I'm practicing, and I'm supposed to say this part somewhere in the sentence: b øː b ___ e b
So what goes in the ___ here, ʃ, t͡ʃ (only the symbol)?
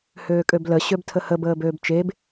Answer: t͡ʃ